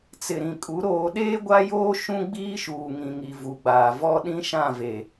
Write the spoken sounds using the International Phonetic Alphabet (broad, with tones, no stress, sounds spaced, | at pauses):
t͡s ɪ˨ ɾ ĩ˨ kʼ u˨˦ ɾ oː˨ ɗ eː˦ ɡʷ a˦ j oː˦ ʃ ũ˦ ɡ͡b iː˦ ʃ uː˨ ŋ ĩ˨ ŋ i˨ v u˨ ɡ͡b aː˨ v ɔ˦ ɗ ĩ˦ ʃ ã˦˨ v e˨